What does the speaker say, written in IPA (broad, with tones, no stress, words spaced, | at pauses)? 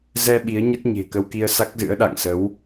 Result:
zɛ˧ ɓi˨˦ə̯ɲə˦˥t̚ ɲe̤˨˩kə˧wki˧ə̯ sa˦˥k̚zɨ̰˧˥ə̯ɗa̰˧˨ŋsə˨˦w